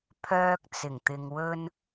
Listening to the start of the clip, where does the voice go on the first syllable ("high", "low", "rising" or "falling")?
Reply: high